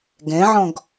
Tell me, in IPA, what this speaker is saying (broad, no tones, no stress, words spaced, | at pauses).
ɡɛ̃ʕɔ̃ɡ